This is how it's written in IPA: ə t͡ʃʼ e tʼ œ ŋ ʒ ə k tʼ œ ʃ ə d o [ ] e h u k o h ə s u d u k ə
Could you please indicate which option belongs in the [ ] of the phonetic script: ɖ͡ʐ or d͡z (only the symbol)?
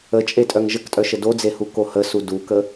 d͡z